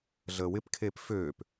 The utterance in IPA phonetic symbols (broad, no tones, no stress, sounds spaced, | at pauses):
ɮ əː w ɪ p kʰ eː p f øː p